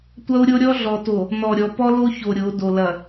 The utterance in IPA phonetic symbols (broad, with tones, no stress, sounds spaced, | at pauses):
tʷ ɐ˦ u̯ ɾʲ o˦ ɾʲ ɔ˦ ɮ ɔ˨ t o˨ | n ɔ˨ ɾʲ ɔ˨ p ɔ˦ l o˦ ç o˨ ɾʲ o˨˦ d o˨ l ɐ˨